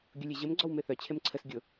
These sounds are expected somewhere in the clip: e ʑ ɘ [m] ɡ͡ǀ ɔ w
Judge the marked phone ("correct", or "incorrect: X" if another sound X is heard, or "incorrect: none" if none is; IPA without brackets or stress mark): correct